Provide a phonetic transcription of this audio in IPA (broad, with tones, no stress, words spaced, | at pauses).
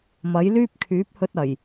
mɐ˨˥jlyː˥p̚ kʰyː˨˥p̚hɵ˧t̚ ɐ˨˩j